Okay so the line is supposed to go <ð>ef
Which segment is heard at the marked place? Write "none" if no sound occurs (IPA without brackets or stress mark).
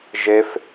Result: ʒ